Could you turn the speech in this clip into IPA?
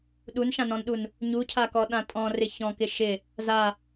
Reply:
ɗ u n ʃ ã n ɔ̃ n ɗ u n | ɲ u cʰ a k ɔ ɗ ã tʼ ɔ̃ r ɪ ç ɔ̃ k ɪ ʃ ɪ | z a

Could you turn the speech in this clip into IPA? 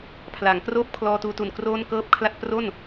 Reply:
pʰ l a˩˦ ŋ k r oː˥˩ p̚ kʰ l ɔː˧ t uː˧ t u˨˩ n k r oː˥˩ n k ɤː˥˩ p̚ kʰ l a˥˩ t̚ p r o˥˩ n

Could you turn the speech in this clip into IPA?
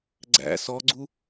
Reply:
ɡ͡ǀ æ̰ s ɔ ɡ͡ǀ u

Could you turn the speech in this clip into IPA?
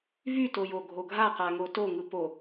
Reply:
v y t o j o ɡʱ o ɡʱ a q a ŋ o t o ŋ ɯ p o

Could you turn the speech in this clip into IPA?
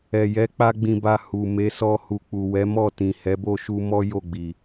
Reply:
ɛ˨ j ɛ˨˦ k͡p a˦ ɡ͡b ĩ˧ b a˧ h u˨ m e˨˦ s ɔ˧ h u˨ k͡p u˨ w ɛ˨˦ m ɔ˦˨ t ĩ˨ h ɛ˨˦ b o˦˨ ʃ u˧ m ɔ˦ j o˦˨ ɡ͡b i˨

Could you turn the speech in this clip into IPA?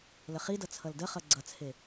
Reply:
l ə χ i d ʌ t͡sʰ ʌ l d ə χ ʌ ɡ͡ǀ ʌ t͡sʰ e

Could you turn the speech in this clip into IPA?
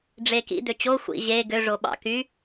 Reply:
ɖ͡ʐ e k ḭ d̪ ø t͡ɕ o xʷ ḭ ʑ e ɡ ø ʐ o ɓ ɑ̰ k y

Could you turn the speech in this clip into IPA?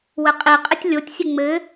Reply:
w ɘ qʼ i qʼ ɘ tʲ lʲ o tʲ sʲ ɘ ŋ͡m ɘ

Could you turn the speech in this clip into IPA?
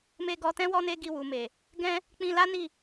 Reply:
m e˧ ɡ ɔ˧ t ɛ̃˦ w ɔ˦ n e˦ ɡ i˧ w u˨ m e˨ | ɡ ɛ̃˦ | k͡p ĩ˧ l a˦ n i˦˨

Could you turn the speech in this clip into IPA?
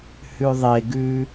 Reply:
h ʉ ðˤ e ɡ ʉ

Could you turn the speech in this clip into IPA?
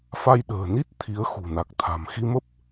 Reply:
f a˧ j ɗ ə̤ː˨˩ n i˦˥ t̚ t̪ʰ i˨˦ ə̯ x ṳ˨˩ n a˨˩ k̚ t̪ʰ a̤˨˩ m x i˧ m ə˦˥ p̚

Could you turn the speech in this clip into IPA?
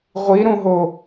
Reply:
ʁʷ i ɾ ũ ɦ o

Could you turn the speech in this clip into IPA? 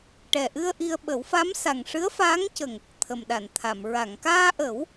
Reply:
ʈ ɛ˨˩ ʔ ɨ˧ ə̯ ʔ i˧ ə̯ ɓ ə˨˩˦ w f a˧˥ m s a˨˩ ŋ ʂ ɨ˧˥ ə̯ f aː˧˥ ŋ c ə˨˩ ŋ | t̪ʰ ə˨˩ m ɗ a˨˩˨ n t̪ʰ a˨˩˨ m ɹ a˨˩˨ ŋ k aː˧ ʔ ə˨˩˦ w

